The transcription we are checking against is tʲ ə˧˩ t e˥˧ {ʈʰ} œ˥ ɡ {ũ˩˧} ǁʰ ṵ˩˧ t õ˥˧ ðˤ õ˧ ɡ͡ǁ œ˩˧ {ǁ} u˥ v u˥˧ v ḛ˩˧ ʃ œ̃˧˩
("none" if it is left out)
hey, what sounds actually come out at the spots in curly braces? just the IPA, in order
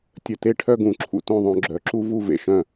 ʈʰ, ũ˩˧, ǁ

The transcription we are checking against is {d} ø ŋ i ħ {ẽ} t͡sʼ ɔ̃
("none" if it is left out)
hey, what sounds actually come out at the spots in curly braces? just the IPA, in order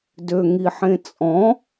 d, ẽ

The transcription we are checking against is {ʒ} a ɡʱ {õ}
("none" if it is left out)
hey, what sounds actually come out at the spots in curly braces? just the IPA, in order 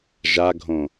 ʒ, õ

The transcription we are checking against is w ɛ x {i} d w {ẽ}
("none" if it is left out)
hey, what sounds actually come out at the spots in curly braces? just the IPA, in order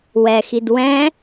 i, ɛ̃

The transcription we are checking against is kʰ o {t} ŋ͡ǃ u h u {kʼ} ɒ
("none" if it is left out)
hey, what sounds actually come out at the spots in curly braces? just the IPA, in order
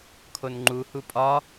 n, pʼ

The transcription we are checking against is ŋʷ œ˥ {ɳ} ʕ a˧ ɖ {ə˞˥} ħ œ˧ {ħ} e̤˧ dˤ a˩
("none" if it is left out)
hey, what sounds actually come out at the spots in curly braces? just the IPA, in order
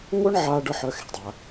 ɳ, ə˞˥, x

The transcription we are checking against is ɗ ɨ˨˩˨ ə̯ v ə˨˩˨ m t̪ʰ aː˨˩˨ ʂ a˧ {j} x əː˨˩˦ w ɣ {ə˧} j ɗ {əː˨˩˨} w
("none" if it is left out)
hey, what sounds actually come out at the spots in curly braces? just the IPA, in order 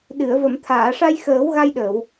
j, a˧, əː˨˩˨

